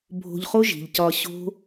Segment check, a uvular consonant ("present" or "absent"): present